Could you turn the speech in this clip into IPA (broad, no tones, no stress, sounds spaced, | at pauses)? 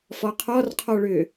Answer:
f ɔ qʰ ɔ r qʰ ɔ ɭ ʏː